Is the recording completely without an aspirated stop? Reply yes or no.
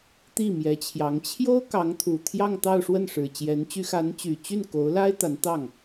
no